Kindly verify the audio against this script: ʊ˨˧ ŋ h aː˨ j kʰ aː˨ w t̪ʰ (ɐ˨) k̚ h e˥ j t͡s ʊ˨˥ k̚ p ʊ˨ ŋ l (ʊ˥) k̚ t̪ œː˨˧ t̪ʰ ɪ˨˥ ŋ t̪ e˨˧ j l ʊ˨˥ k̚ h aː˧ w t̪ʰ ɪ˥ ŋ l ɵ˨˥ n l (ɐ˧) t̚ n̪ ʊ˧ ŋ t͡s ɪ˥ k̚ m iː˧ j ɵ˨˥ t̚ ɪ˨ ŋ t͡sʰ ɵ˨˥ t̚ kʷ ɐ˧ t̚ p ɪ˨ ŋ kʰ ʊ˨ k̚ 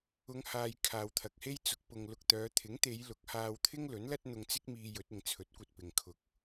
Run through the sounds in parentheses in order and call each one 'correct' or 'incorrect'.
correct, incorrect: ʊ˨, incorrect: ɐ˥

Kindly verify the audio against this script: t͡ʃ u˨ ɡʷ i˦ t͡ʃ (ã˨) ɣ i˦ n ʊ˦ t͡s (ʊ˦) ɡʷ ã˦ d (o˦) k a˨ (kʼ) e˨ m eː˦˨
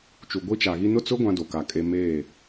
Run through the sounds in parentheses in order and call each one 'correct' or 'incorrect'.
incorrect: a˨, correct, incorrect: o˨, correct

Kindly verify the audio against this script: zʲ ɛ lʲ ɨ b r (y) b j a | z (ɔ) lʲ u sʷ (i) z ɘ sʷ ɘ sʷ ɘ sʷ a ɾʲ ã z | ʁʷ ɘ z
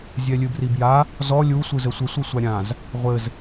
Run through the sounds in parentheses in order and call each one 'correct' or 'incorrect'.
incorrect: i, correct, incorrect: ɨ

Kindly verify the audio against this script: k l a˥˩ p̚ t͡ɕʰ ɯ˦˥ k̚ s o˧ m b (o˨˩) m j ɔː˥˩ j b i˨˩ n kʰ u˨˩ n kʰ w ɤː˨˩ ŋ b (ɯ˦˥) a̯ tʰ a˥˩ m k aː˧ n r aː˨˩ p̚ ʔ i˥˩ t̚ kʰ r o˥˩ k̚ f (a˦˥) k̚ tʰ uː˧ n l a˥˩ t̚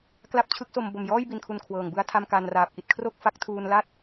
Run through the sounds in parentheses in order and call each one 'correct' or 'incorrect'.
correct, incorrect: ɯ˥˩, correct

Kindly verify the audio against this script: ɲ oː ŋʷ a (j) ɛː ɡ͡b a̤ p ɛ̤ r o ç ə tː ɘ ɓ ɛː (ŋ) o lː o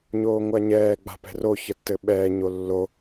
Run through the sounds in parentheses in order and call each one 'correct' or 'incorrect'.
incorrect: ɲ, incorrect: ɲ

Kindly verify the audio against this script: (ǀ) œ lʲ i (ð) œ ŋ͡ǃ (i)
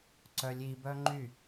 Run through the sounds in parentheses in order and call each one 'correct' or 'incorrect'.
correct, incorrect: b, incorrect: y

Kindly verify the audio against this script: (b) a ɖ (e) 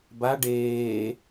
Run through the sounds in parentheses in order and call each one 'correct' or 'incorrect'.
correct, incorrect: eː

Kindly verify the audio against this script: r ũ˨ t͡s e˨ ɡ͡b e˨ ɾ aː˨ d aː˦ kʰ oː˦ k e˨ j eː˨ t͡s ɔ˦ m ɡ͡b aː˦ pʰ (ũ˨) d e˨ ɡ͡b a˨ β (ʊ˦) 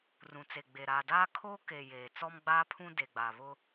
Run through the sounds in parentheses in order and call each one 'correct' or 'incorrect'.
incorrect: ũ˦, correct

